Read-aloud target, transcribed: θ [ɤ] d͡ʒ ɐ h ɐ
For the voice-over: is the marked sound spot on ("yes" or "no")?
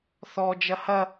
no